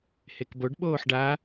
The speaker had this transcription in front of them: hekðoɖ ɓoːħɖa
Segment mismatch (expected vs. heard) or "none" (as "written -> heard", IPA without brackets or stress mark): ð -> b